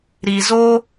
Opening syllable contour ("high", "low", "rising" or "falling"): low